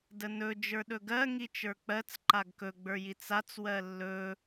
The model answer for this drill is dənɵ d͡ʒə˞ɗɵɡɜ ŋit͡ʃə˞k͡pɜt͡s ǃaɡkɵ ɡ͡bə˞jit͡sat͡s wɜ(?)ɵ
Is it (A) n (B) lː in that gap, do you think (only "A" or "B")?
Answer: B